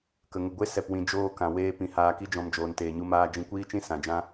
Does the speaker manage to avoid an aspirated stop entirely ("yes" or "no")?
yes